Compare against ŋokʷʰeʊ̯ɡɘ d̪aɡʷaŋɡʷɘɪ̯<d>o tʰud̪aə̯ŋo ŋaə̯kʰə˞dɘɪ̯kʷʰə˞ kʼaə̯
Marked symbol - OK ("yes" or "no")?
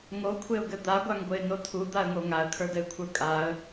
no